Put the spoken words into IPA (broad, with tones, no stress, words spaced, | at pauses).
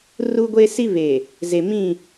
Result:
ru˦ɡʷe˦si˦ βe˨ | ze˨mĩ˦˨